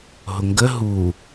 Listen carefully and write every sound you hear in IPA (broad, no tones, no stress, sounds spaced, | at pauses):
ɦ ʊ ŋ ɡ ə ɦ u